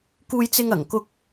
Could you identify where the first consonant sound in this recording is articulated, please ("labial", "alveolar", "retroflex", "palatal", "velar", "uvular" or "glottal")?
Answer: velar